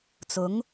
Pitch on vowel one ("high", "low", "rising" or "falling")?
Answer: rising